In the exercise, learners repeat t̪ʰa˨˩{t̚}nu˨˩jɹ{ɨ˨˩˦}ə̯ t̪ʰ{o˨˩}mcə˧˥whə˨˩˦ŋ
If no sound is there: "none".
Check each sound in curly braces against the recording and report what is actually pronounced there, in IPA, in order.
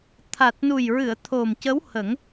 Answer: t̚, ɨ˨˩˨, o˨˩

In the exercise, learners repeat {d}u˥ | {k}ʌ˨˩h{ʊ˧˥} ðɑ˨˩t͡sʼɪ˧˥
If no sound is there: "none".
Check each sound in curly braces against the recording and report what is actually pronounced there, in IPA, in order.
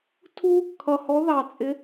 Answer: tʰ, kʰ, ɔ˧˥

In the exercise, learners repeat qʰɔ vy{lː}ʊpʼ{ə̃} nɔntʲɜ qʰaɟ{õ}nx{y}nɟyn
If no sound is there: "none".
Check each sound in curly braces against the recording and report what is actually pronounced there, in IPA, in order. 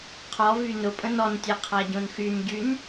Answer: n, ə̃, õ, y

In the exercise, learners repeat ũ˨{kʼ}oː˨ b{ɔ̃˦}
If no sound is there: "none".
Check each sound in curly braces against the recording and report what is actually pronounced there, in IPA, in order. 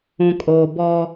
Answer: kʼ, ɔ˦

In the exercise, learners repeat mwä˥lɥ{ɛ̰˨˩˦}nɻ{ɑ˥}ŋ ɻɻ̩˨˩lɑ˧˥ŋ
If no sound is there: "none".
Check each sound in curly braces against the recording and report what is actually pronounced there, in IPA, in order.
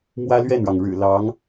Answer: ɛ˥˩, ɑ˩

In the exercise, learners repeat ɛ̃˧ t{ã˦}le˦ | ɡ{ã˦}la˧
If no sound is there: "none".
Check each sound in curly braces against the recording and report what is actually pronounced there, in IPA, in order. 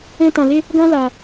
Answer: ã˧, ã˦

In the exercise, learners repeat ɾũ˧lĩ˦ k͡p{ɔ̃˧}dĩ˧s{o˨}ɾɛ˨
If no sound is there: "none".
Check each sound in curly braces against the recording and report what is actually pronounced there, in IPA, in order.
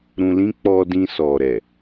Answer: ɔ˧, ɔ˨

